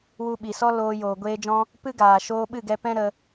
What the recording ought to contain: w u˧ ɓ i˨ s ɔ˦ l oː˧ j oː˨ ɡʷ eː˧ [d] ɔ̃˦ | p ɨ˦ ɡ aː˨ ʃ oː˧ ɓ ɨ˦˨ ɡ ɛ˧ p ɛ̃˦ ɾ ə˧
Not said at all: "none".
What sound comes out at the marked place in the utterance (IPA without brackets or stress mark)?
d͡ʒ